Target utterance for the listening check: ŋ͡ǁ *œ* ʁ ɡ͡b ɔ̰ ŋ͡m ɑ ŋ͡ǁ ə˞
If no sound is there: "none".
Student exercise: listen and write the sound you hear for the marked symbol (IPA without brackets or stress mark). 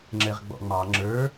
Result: ɛ